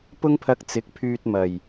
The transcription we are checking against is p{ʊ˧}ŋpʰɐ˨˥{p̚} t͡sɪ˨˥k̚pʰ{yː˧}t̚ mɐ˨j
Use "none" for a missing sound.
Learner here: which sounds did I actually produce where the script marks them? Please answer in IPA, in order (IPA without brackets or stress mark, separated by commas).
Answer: ʊ˧, k̚, yː˧